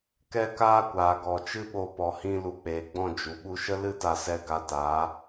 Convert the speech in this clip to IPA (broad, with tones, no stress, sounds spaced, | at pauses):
k ɛ˦ k aː˦ kʷ aː˨ ɡ ɔ˨ t͡ʃ ɨ˦ ɓ o˧ p ɔ˨ h ĩ˧ l u˨ k͡p eː˨ ɡ͡b ɔ̃˦˨ d͡ʒ u˨ ɓ u˧ ʃ ə˦ l ɨ˦ t a˧ s ɛ˧ ɡ a˧ t aː˨˦